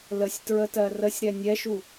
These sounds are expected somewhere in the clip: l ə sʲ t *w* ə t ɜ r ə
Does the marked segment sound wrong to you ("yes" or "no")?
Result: yes